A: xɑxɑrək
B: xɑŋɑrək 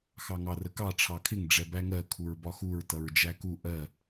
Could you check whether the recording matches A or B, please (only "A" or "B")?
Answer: B